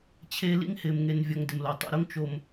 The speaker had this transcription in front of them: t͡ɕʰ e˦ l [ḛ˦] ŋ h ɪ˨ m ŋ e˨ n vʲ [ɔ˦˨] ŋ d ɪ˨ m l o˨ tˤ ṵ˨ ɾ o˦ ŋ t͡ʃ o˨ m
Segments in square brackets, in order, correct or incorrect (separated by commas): incorrect, incorrect